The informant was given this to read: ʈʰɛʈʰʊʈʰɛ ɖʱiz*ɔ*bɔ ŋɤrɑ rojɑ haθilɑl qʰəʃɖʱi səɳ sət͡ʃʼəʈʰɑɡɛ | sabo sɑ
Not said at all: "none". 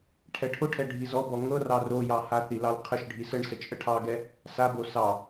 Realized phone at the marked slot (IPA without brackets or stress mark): ɔ